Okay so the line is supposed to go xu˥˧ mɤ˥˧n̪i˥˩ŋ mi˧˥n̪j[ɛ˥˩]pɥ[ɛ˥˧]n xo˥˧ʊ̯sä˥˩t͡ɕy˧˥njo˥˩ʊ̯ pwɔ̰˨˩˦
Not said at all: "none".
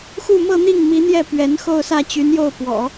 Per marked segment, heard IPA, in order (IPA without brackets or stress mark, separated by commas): ɛ˥˩, ɛ˧˥